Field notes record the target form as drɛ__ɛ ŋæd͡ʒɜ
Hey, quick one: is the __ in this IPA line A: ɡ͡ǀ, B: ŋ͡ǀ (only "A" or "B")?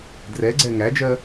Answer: A